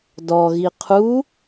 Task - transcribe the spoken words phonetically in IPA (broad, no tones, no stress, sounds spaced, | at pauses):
d ɔ ɣ i qʰ u